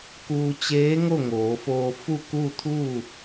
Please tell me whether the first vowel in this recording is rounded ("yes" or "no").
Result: yes